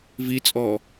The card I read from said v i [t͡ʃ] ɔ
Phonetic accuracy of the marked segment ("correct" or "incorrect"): incorrect